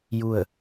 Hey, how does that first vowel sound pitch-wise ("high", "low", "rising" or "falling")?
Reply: falling